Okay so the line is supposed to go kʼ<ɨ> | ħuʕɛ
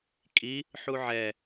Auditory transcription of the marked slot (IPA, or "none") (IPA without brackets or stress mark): i